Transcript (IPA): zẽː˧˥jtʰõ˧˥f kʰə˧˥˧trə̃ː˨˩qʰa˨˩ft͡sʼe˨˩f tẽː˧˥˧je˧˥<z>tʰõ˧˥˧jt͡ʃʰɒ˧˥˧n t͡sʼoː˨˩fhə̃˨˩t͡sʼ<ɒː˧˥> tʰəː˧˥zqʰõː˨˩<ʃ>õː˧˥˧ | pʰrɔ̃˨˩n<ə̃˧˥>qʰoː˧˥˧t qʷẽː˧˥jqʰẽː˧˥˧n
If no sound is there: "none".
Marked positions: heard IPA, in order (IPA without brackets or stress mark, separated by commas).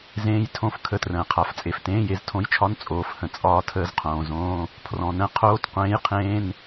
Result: z, ɒː˧˥, z, ə̃˧˥˧